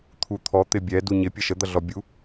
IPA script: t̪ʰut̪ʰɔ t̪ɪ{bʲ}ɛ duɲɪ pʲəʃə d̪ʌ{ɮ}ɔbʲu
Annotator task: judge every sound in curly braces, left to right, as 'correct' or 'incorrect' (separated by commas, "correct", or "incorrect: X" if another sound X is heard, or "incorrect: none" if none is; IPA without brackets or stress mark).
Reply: correct, correct